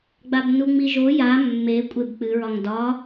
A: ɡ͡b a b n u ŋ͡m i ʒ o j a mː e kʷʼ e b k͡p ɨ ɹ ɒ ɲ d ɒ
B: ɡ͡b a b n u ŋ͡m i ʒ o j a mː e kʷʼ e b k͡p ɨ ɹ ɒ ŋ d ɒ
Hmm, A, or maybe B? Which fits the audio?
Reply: B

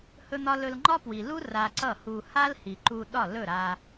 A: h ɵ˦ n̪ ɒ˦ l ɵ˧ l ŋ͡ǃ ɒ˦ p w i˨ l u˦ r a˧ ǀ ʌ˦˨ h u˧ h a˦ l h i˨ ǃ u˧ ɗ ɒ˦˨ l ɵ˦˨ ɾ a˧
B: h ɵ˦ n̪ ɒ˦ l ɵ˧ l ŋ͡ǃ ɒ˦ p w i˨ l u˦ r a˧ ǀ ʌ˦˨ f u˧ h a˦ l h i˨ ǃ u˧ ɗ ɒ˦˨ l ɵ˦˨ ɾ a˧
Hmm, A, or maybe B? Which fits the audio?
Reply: A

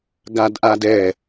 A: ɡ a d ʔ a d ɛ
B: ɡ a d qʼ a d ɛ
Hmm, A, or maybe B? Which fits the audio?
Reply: A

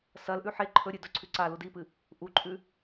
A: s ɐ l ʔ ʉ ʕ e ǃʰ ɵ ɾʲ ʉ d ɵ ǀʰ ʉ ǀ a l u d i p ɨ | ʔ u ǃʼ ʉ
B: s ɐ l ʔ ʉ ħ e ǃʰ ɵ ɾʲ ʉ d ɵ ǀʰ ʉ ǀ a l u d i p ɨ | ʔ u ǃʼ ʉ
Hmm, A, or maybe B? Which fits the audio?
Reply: B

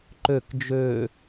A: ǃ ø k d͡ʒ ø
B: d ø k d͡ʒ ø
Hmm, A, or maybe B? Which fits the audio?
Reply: A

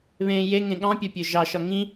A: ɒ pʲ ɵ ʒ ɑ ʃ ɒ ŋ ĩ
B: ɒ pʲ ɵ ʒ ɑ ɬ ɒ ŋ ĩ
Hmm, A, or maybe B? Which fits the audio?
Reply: A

